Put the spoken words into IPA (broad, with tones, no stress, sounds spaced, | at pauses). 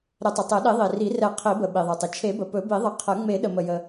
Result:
ɾ ə˨˩˦ tˤ ə˩ tˤ ɛ˨˩˦ ɗ i˨˩˦ ðˤ i˩ r i˨˩˦ r ɛ˨˩˦ qʰ i˨˩˦ b ə˩ ɓ i˩ ðˤ e˩ tˤ ə˩ t͡ʃʰ e˨˩˦ b ə˩ p ɵ˨˩˦ b i˨˩˦ ðˤ ə˨˩˦ qʰ ə˨˩˦ ŋ͡m e˨˩˦ ɗ ə˩ m ə˩ j ə˩